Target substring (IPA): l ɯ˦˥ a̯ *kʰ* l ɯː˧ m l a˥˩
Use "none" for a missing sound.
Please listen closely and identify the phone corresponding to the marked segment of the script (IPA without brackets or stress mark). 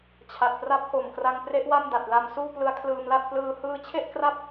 kʰ